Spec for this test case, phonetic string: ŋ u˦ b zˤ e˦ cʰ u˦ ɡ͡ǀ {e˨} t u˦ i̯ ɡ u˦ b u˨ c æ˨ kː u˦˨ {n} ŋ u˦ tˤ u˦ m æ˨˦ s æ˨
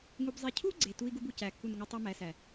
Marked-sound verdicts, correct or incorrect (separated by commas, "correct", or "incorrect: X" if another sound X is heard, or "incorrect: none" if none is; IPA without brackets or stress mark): correct, correct